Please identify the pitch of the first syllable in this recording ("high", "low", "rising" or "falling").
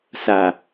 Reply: low